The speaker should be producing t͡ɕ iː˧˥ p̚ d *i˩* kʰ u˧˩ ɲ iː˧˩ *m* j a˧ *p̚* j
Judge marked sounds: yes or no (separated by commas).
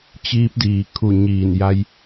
no, no, no